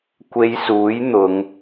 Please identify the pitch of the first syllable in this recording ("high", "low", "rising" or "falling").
low